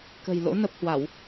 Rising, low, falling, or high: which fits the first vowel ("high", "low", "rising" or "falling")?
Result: low